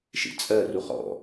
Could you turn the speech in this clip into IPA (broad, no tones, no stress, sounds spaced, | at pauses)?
ʃ ḭ t͡sʼ ɜ r u χ ɔ̰